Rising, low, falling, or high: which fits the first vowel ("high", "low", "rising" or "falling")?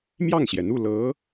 falling